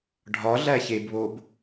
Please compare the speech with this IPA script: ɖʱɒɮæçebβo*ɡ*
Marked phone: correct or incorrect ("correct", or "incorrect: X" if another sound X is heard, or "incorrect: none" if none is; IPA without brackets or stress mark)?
incorrect: b